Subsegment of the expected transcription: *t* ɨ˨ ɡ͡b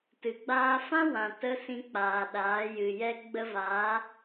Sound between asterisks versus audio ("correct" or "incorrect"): correct